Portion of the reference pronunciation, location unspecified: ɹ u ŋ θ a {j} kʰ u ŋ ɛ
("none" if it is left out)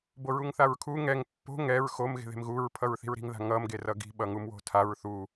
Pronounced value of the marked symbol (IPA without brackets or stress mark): ɹ